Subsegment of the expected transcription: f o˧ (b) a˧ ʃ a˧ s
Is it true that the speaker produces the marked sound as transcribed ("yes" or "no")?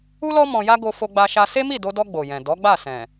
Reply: no